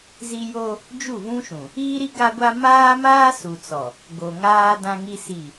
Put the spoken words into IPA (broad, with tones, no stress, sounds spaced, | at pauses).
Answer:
z i˦ j o˦ | d͡ʒ u˦˨ v ũ˦ ʃ ũ˨ | iː˦ ɾ i˦ ɡ a˦ ɡʷ a˦ m aː˦ m aː˦ s u˨ t͡s ɔ˨ | ɡ o˨ ŋ aː˦ d ã˦ ŋ i˦ s i˦˨